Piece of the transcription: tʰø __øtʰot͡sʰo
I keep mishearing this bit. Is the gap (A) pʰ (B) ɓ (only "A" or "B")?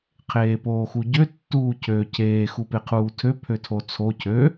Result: A